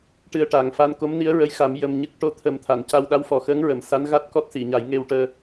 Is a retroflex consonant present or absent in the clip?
present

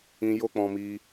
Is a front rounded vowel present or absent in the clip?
absent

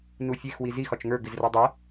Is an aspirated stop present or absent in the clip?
absent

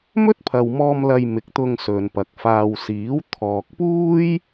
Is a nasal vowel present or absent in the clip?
absent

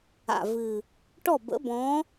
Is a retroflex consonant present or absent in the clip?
present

